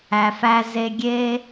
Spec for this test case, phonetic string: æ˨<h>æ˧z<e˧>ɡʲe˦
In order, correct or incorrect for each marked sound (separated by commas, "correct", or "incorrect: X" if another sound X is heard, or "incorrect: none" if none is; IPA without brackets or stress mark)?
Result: incorrect: f, correct